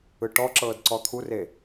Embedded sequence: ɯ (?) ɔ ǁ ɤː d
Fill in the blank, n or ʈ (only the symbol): ʈ